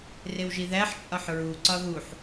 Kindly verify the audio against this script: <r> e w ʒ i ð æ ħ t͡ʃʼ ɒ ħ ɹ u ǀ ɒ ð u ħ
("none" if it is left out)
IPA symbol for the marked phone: r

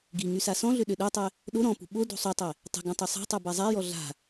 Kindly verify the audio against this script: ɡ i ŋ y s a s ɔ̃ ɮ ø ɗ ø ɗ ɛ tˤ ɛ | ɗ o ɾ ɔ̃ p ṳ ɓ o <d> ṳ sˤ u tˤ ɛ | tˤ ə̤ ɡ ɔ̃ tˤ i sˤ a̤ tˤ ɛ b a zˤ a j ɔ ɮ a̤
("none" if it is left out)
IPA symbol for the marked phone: d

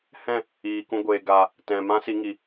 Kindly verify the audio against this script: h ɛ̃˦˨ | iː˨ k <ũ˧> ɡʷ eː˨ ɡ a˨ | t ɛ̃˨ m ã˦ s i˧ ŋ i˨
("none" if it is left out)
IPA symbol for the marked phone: ũ˧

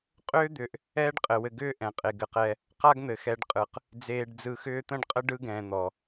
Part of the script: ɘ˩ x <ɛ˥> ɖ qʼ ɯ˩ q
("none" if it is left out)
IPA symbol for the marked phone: ɛ˨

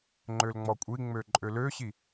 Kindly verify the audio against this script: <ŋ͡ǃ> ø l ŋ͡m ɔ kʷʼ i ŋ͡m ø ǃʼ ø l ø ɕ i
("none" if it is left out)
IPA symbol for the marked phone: ŋ͡ǃ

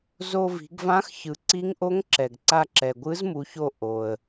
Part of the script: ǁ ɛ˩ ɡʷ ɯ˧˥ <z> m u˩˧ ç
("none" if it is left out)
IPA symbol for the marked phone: z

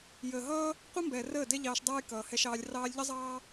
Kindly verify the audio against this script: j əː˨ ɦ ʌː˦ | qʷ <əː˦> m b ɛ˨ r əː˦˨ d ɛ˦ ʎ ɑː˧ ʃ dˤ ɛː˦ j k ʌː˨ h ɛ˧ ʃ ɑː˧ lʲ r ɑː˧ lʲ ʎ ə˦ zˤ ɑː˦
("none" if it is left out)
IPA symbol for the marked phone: ə˦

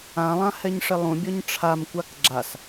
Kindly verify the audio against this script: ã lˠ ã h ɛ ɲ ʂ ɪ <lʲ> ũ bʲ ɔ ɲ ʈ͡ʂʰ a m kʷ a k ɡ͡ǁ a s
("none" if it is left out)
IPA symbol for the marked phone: lˠ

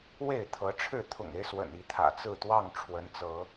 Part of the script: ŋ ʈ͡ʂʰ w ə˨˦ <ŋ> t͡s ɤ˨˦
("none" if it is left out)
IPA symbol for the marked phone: n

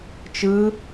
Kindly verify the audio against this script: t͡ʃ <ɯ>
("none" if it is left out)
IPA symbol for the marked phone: ɯ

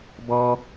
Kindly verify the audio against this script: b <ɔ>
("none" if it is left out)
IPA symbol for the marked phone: ɔ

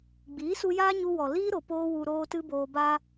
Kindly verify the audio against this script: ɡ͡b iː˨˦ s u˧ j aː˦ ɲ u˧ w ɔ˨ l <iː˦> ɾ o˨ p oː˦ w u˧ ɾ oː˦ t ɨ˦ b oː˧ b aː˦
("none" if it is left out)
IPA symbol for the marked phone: iː˦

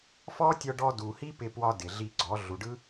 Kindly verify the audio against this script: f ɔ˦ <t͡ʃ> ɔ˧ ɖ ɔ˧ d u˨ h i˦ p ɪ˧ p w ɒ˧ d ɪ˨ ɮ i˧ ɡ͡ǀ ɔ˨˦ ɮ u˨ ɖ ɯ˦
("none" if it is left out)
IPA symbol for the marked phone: tʲ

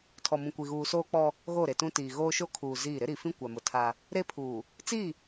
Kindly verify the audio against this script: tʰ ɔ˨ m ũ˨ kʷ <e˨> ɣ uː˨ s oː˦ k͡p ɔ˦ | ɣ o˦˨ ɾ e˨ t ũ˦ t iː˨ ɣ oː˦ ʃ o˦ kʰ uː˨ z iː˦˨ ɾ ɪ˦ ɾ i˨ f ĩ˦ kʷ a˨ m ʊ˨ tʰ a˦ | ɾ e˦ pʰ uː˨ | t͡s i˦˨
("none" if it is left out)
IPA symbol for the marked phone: i˨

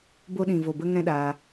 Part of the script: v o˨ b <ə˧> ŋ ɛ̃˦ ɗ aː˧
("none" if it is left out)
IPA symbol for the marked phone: ə˧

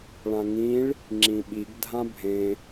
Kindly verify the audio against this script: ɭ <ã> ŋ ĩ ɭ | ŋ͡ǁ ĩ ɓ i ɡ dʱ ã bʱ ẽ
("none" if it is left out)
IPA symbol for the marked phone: ã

